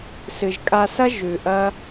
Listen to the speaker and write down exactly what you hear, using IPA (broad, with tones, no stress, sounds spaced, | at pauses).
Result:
s ɨ˨ ʒ kʼ a˧ s ɐ˦ ʒ ʉ˨ ʔ ɐ˦